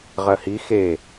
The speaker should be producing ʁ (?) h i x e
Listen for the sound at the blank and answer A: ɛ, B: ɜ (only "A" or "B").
B